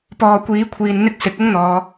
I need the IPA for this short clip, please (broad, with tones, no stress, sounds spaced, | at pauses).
p ɔː˨ kʷ iː˨˥ kʷʰ iː˨ n n̪ ɪ˥ k̚ s ɪ˨˥ k̚ ʊ˥ ŋ n̪ ɔː˨˧